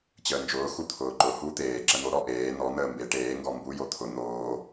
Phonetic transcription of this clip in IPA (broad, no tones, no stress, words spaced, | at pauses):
t͡ɕəːnd͡ʒʊː xut̪ʰʊːǃʊ hu t̪eː ǁən̪o ɾɔʔeː nɔ n̪əːmbe ʈeːŋɡɔ mbu jot̪ʰʊ n̪oː